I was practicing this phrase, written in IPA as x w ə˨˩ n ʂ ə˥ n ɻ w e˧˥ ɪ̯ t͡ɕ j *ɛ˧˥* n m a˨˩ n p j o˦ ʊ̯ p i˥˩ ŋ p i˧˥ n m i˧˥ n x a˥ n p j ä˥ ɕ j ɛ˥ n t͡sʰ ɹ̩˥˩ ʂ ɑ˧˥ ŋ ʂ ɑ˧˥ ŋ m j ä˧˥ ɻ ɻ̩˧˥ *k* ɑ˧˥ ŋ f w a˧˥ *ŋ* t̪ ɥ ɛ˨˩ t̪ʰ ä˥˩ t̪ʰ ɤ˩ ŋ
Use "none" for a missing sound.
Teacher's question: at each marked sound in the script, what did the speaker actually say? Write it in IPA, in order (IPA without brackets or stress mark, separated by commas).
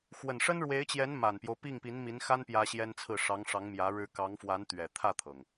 ɛ˧˥, k, n